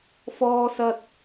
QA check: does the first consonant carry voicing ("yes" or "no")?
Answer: no